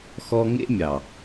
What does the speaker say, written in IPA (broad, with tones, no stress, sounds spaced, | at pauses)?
x ɔ˧ ŋ ḛ˦ mʲ ɑ˨